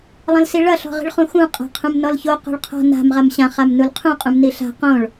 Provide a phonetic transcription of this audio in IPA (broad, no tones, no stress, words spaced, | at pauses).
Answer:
lˠɐ̃lsiɭɐ ɬɔ̤ʁi̤ɭχũxũ qʼa̤qʰũmnɔlço qo̤ɭqʰɔ̤ na̤m ʁamɕã χamnulqʰũ qʼũmniɬa̤ qõɭ